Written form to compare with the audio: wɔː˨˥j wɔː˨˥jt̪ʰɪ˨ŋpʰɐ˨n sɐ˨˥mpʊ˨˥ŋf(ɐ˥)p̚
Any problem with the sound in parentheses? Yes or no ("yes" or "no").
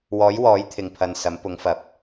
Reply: yes